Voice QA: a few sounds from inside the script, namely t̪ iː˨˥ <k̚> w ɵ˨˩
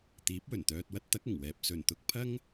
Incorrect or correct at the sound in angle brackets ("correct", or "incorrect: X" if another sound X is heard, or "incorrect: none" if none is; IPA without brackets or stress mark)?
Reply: incorrect: p̚